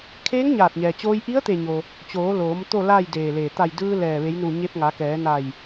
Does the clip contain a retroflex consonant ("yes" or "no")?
no